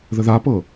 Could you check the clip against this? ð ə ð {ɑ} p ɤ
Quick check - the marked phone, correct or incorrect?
incorrect